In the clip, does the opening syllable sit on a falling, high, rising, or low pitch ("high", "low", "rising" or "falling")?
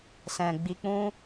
low